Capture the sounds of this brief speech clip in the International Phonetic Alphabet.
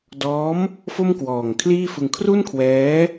dɔː˦˥m | fo˥˩mkwɔː˨˩ŋkʰliː˥˩fɯ˧ŋ kʰru˥˩nkʰwɛː˦˥

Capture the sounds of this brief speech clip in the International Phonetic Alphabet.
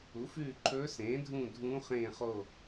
u˩˥fʉː˦˨ǃʰɵː˧˥ sẽː˩˥dʱũː˦˨ dʱũː˧˥χẽː˦˨ χo˦˨

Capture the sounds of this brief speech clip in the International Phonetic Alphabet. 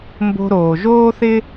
mbo̤˧ɾoː˩ʒoː˥θɪ˥

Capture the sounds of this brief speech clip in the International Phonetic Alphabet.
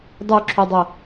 dˤuǁʰydˤɤ

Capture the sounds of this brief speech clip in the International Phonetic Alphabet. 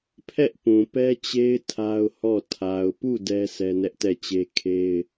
pʰɛ˦ʔpũ˨pɛ˦t͡ɕe˦ɪ̯ tʰa˦ʊ̯hɔ˦˨ tʰa˨ʊ̯pu˦˨ dɛ˦ sʰɛ˦nɛ˦ʔtɛ˦˨t͡ɕe˦ kʰe˦ɪ̯

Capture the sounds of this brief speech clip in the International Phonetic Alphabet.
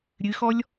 ɾʲɨxɔlʲ

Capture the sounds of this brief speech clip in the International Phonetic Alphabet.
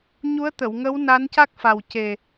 ɲu˧˥ə̯t̪ə˨˩˨wŋə˧˥w na˧˥nca˦˥k̚fa˨˩w ce˨˩

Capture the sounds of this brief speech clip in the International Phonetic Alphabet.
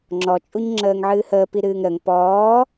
ŋ͡ǁɔt͡ʃʼuɲ ŋ͡ǁəːŋʕɨːhəːpi ɾɨːŋɾəŋ pɔː

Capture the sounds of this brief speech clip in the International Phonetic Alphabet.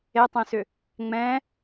etˤẽsʏ | ŋ͡mɛ̃

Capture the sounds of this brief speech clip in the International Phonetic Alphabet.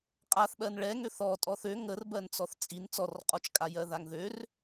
qʼaθɓɜn ɭɛ ŋøθɔtʼɔθ ø ŋər bɜnt͡sɔθt͡sʼin t͡sɔrqʼɔt͡ʃkʼa jɜðaŋðør

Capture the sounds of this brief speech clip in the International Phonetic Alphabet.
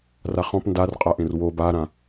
raχɔ̃p ndarqʼaʔẽr wob aɾã

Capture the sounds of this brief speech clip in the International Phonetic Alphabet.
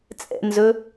t͡sʼɛ̰nzɵ

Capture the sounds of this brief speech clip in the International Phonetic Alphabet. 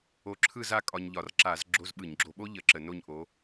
o˧˥ǁʰɯ˥˧za˥˧ kʼɒ˧ɲʎɒ˧˩˧r ǁa˧˩˧z ɡ͡ǁo˧˥˧z ɓɯ˧˩˧ɲɡ͡ǁo˧ ɓo˥ʎə˧˩˧ ǁə˧˩˧no˥˧ɲʔo˧˥

